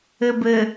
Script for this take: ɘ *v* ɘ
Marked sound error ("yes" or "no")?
yes